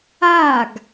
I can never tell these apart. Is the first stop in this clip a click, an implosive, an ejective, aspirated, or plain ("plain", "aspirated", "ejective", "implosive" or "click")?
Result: plain